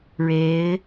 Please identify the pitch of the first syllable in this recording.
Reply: rising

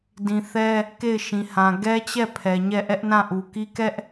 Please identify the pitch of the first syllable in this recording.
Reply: high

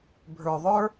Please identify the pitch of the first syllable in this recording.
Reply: low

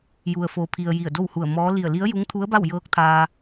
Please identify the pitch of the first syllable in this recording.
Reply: low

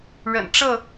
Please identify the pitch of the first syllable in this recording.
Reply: low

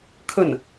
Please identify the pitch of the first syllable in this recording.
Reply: falling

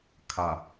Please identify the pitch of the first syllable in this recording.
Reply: low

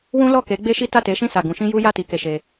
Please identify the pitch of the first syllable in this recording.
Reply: high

